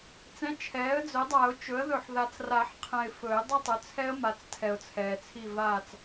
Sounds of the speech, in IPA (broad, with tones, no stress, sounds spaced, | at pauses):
t͡s ɛ̃˩˥ t͡ʃʰ ɛː˩˥ ə̯ d͡z ɵ˩˥ dˤ a˨˩˦ ʊ̯ t͡ʃ ɵ˩˥ ə̯ ð ɵ˨ ħ ð a˨ t͡s r a˨˩˦ ħ qʰ ɛ̃˨ ɪ̯ f ɵ˨˩˦ ɪ̯ dˤ ʌ˦˨ tˤ ɵ˩˥ t͡sʰ ɛ˦˥ ə̯ m a˩˥ t͡s tʰ ɛ˨ ʊ̯ t͡sʰ ɛː˨ t͡sʰ i˦˨ v aː˦˨ t͡s